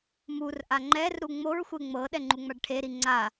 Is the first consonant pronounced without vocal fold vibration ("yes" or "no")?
no